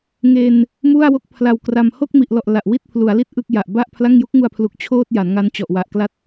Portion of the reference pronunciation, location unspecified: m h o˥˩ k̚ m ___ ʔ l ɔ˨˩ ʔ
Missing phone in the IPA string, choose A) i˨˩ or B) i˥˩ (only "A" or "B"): A